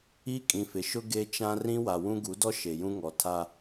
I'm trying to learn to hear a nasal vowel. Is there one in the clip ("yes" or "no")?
yes